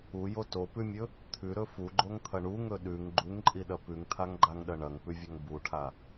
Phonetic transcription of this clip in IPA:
u j o t o p ʉ mʲ ɵ | t̪ʰ ʉ ɾ ɵ f u ɡ͡ǃ o ŋ t̪ʰ ɐ ɳ u ŋ ɵ ɗ ʉ ŋ ɡ͡ǃ u ŋ ǃʼ i ɗ ɐ p ʉ ŋ t̪ʰ a ŋ ɡ͡ǃ a ŋ ɗ ɐ ɳ ɐ ŋ p ʉ vʲ ɐ ŋ b u ʈʰ a

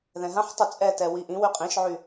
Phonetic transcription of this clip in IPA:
ð ɛ̃ ɦ ã ħ tˤ y t͡sʼ ɛ t ɛ w i ʔ ĩ w y qʼ ĩ ʃ ʕ y

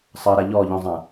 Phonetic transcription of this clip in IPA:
sˤ ʌ ɾ a ʎ ɔ ʎ ɔ̃ zˤ ã

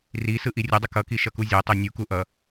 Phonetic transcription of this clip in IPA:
r i s ɯ ʔ i rʲ ʌ dˤ ʌ k ʌ k i ʃ ʌ k u zʲ a tˤ o nʲ u k u ʔ ʌ

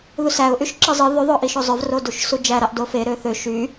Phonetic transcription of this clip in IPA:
ð u s æ ʊ̯ ʔ y ʃ ǁ ɯ zˤ ɯ ð y ðˤ o ʔ i ʃ o zˤ ø v r o d u ʃ s u d͡ʒ æ ɾ ɑ ʔ d o f e ɾ ø θ ø ʃ y

